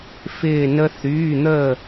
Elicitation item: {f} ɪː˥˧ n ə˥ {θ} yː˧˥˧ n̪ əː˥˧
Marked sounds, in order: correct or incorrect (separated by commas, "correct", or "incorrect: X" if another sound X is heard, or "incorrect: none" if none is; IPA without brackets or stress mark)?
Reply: correct, correct